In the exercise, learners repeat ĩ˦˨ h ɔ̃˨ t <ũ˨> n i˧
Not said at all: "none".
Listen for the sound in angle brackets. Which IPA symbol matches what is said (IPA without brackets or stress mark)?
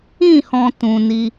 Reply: ũ˨